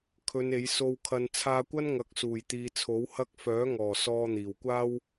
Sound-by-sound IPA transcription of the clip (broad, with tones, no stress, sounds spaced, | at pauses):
kʰ ɵ˨˧ n e˨˥ j s o˧ w kʰ ɐ˧ n t͡sʰ aː˧ kʷ ɐ˥ n ŋ ɐ˨˥ k̚ s uː˨˩ j t̪ iː˨ t͡sʰ o˨˥ w h ɐ˧ k̚ f œː˨˥ ŋ ɔː˨˩ s ɔː˧ n̪ iː˨˩ w kʷ aː˥ w